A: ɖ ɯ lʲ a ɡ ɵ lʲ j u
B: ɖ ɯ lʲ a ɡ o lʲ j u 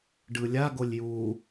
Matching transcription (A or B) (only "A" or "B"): B